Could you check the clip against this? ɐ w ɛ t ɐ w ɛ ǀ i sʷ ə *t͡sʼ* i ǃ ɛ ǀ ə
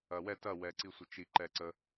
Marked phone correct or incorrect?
incorrect